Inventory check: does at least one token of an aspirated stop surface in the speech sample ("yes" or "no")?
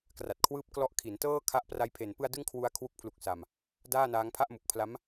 yes